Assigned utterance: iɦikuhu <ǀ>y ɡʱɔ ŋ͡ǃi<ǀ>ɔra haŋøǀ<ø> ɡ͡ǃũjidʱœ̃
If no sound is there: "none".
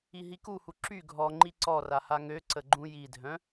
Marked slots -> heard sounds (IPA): ǁ, ǀ, ə

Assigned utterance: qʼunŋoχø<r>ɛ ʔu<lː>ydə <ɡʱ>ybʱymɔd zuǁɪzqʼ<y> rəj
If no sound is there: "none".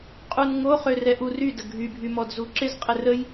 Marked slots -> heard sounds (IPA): r, r, ɡʱ, ɪ

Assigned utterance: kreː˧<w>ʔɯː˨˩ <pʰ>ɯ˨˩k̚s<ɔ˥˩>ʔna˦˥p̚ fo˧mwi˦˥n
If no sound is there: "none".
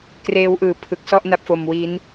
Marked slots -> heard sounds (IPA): w, pʰ, ɔ˥˩

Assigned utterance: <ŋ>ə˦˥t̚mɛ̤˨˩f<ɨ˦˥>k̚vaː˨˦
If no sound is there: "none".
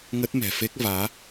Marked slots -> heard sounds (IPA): ŋ, e˦˥

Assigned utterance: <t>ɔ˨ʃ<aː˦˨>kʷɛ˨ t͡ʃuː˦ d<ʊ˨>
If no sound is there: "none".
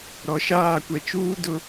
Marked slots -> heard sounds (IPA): ɾ, aː˦˨, ʊ˨

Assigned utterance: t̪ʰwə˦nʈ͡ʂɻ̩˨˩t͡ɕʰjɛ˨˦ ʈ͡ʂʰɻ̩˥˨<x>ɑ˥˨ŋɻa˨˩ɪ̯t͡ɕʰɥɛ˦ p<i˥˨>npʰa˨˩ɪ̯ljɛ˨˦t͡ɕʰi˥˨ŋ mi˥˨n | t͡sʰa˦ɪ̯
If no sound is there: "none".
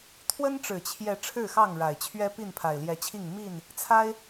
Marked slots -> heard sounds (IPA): x, i˥˨

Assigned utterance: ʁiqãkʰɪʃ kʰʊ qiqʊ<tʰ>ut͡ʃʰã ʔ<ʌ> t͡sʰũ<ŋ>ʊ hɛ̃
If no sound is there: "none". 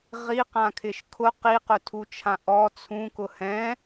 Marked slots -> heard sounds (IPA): tʰ, ɔ, k

